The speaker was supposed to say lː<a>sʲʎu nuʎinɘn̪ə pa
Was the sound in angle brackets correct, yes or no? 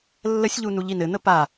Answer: no